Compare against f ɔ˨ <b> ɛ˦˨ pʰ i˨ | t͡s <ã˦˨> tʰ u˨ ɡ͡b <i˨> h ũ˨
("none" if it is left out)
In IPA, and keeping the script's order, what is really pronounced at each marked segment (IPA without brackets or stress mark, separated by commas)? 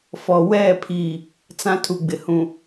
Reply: w, ã˦, ɪ˨